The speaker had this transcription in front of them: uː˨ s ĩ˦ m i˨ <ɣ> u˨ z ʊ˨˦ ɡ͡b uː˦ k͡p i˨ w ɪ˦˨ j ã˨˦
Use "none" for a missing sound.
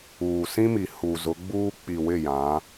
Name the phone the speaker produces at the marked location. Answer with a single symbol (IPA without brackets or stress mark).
h